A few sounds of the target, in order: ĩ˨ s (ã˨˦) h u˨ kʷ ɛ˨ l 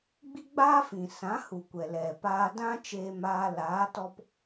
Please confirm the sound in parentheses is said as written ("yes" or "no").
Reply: yes